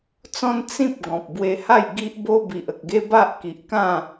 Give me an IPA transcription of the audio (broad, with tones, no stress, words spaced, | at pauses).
t͡sɔ̃˦n t͡sĩ˦p̚ ɡɔ̃˨p̚ bwe˧ha˥˧j ɡi˦ʔbo˦ bi˨ʔə˨k̚ɡe˦ ba˦ʔki˨ʔkã˥˧